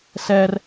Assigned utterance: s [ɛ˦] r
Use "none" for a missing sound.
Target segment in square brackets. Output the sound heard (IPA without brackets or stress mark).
ɛ˦